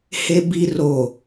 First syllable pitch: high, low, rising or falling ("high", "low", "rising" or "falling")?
low